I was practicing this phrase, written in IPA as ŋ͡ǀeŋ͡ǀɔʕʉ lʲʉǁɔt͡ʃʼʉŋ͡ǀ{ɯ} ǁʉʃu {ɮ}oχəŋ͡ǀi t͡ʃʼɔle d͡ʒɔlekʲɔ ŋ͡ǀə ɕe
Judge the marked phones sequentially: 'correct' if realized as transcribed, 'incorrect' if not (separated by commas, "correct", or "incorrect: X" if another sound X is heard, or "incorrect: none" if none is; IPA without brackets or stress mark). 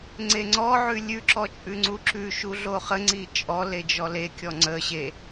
incorrect: u, correct